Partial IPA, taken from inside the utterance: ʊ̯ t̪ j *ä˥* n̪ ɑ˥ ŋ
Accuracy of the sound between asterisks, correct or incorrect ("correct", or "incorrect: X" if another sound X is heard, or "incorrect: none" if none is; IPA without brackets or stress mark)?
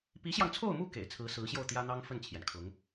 correct